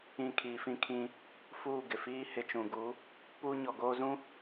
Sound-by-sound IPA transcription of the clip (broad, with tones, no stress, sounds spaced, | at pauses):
ĩ˦˨ kʰ iː˨ f ĩ˦ kʰ ĩ˦ | f uː˦˨ ɡ ɪ˨ f iː˦ h ɪ˨ t͡ʃ ũ˨ ɡ u˨˦ | p uː˦ ɲ ɔ˨ ɡ oː˦ z ũ˦